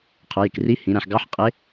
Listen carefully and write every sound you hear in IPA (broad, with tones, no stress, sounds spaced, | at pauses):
qʰ ʊ˩˧ j ɪ˩ k r i˧˥ h ĩ˩˧ ɾ æ̃˩ ħ ɡ ɑ˧˥ ħ qʼ ɪ˧˥